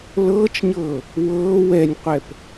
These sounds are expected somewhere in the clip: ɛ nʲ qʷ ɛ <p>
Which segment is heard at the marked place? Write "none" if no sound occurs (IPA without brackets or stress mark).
p